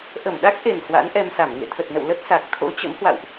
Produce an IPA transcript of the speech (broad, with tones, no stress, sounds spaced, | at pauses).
ʔ ə˧˩ m ɗ a˦˥ k̚ ʔ e˨˩ n h w a̰˧˥ n ʔ ɛ˧ m s a˧˩ m ŋ ḛ˧˨ t̪ʰ ə˨˩ t̚ n ə̰˧˨ w l ə˦˥ t̚ s a˨˩ k̚ t̪ʰ o̰˧˥ t͡ɕ ə̰˧˥ m h w a̰˧˨ w ʔ